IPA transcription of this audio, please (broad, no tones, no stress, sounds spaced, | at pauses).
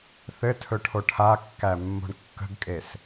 θ ɘ tʰ ɵ ʈʰ o ʈʰ a kː æ mː o̤ ɳ kː ə̤ ɡ kʼ e s